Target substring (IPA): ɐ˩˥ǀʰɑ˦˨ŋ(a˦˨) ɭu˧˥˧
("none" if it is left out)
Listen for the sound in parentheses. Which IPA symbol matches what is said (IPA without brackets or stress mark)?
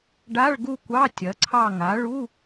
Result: a˩˥